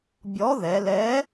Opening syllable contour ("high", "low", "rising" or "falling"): rising